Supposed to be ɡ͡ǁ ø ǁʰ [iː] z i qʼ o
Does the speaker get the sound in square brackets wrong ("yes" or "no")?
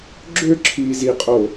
no